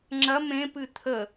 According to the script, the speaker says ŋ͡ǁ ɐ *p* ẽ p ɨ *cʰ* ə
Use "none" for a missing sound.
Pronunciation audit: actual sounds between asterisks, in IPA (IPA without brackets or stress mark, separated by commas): m, t̪ʰ